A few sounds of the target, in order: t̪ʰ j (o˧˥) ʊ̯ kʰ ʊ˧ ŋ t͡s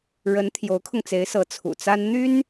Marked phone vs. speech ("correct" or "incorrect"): correct